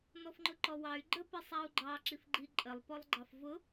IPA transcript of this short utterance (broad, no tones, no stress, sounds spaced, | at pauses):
n ɔ f ŋ͡ǃ ʊ ǃ ɔ w ɑ y̯ ɡ͡ǃ ə p i sˤ æ u̯ ɡ͡ǃ ɑ ǁ i f ɡ͡ǃ i ǃʼ ə lˠ p ɔ lˠ ɡ͡ǃ ɑ f v ʊ